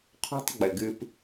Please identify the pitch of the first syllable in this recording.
high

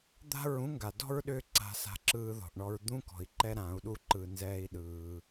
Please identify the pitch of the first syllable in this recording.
falling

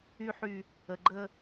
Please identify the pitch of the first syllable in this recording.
high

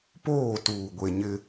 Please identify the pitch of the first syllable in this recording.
falling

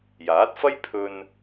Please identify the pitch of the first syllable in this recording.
rising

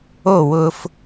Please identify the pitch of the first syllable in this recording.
falling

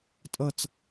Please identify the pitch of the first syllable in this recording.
falling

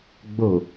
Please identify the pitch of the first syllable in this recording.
low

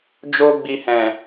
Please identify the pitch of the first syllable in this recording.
high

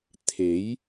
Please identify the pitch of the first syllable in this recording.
rising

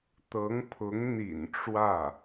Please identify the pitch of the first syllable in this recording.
rising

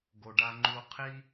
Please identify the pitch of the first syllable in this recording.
low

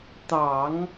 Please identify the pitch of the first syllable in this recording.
low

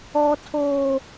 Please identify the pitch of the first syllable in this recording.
low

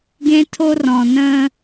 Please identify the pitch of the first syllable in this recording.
high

